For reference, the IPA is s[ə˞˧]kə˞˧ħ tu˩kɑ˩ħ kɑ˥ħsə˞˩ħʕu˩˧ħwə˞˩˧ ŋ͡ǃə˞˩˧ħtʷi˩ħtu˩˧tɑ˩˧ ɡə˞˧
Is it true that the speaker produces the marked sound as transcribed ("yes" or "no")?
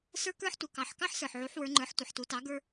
yes